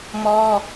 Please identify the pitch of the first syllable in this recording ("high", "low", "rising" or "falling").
high